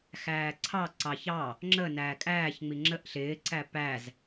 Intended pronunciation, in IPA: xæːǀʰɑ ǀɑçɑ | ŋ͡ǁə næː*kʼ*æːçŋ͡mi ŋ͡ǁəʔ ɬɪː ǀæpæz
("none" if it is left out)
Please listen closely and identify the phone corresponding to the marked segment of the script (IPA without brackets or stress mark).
kʼ